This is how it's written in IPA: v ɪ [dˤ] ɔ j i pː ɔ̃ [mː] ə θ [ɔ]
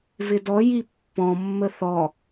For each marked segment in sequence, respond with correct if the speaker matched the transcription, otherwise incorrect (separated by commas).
incorrect, correct, correct